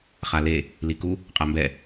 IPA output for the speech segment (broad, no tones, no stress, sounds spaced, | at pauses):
χ a l e | l i k u | qʼ a m b ɛ